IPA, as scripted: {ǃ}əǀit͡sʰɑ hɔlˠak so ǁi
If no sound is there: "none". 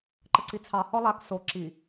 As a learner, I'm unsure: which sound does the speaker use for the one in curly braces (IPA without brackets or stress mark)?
ǃ